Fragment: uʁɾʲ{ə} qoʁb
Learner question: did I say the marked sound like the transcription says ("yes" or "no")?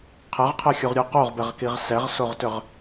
no